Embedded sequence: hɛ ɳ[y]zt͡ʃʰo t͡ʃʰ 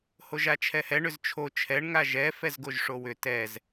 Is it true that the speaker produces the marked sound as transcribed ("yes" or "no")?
no